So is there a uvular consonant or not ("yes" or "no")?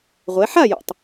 yes